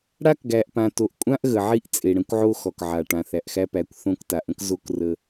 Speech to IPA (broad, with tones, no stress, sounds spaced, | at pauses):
ɽ a˦ k ɡ æ˨ ʔ p ã˨ t o˨ ʔ kʷʼ ã˦ ʔ ɣ ə˨ ʕ i˦ ʔ t͡sʼ e˨ ɽ ə̃˦ kʷ ʕ o˦ x ɔ˨ k ʕ a˨ ʈ ã˨ θ æ˨ ʔ x æ˦ p æ˨˦ kʷ θ õ˦ k t a˨ ʔ ə̃˦ k z o˦ k r ə˦